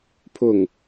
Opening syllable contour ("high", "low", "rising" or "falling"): falling